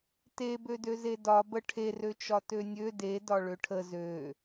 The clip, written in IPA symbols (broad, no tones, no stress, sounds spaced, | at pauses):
t e b ø d ø z e d ɒ b ə ʈʰ e r ø t͡ʃ ɒ t ø nʲ ø d e d ɒ ɭ ø ʈʰ ə z ø